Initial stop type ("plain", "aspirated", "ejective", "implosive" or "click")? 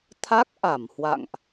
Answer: aspirated